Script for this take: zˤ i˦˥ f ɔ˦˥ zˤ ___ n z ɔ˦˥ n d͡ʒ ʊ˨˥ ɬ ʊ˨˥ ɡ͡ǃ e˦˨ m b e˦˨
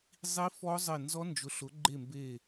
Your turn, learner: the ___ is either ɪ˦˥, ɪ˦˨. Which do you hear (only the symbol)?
ɪ˦˨